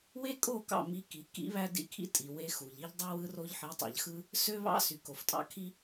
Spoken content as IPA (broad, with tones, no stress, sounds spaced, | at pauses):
w e˦ kʼ o˦˨ k ɑ̰˦˨ m i˧ k i˨˦ k ḭ˦ β æ˦ d ḭ˧ kʰ ḭ˦ tʼ i˨ w e˦ x u˨ ʎ i˧ ʎ dˤ u˧ w ɯ˧ r o˧ ʎ ħ i˨˦ tˤ ɑ̰˨ ʎ x ɯ˦ | s ø˦ β ɑ̰˦ s y˨ k o˨ f tʼ ɑ̰˦ kʰ i˦